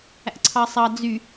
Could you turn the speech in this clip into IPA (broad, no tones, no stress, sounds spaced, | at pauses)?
æ̰ ǀʰ ɑ sˤ ɑ d͡z y